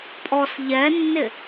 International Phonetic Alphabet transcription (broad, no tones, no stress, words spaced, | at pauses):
pʼɔs ʎɛnːɪ